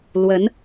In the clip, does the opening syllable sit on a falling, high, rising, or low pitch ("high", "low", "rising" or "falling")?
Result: rising